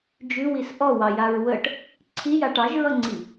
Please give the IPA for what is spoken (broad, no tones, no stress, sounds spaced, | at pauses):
d͡ʒ ʉ w i s ʔ ɔ w ɑ j a ɹ w ə ʈ | ǀʰ i j a ʈ ɑ ʒ ɹ ʌ ŋ͡ǀ i